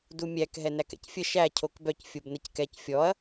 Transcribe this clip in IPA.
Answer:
d u mʲ æ k ɦ ɛ n æ k ɛ̰ c fʲ ə ʃ æ cʰ o k b œ c fʲ o b n ə c k ɛ c fʲ ɔ ɐ̯

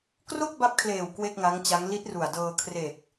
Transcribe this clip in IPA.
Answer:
k r o˥˩ k̚ b a˦˥ p̚ kʰ l eː˨˩ w k w e˥˩ k̚ ŋ a˦˥ ŋ t͡ɕ a˦˥ ŋ l i˦˥ t̚ r u˨˩ a̯ d ɤː˧ kʰ r e˨˩ k̚

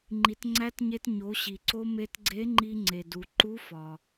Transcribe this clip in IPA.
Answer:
ŋ͡ǃ i˩˧ t ŋ͡ǀ æ˧˥ t ɲ e˧ t ɲ o˩˧ ɕ i˩ ǀ o˧ m e˧ t ɡ͡ǀ e˧˥ ŋ͡ǃ i˧ ŋ͡ǀ e˩ d u˩ ǃ u˧˥ f ɒ˩

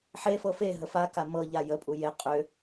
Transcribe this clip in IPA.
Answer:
ħ e f ɤ f e ɦ ə f a k a m ɤ ʎ a j ə pʼ u j e qʼ ø

